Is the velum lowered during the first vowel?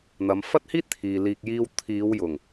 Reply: no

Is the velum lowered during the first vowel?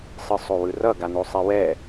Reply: no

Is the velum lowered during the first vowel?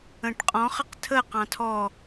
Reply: yes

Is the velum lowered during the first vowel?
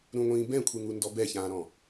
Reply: yes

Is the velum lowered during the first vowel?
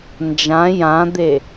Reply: yes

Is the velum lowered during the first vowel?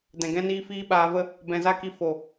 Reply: yes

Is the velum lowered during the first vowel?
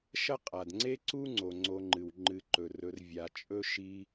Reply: no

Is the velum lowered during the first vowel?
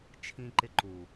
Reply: yes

